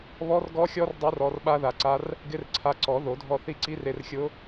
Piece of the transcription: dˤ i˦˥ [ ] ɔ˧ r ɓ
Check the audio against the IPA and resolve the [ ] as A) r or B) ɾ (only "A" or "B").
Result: A